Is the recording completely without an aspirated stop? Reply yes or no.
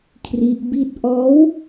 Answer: no